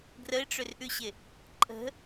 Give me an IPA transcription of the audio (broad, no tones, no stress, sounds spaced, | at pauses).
ɡ r ə ɪ̯ ʈ͡ʂ ʏ r ʔ ʉ ɕ ɪ | ǃʼ ə̤